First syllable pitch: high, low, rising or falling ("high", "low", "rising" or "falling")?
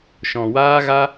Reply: low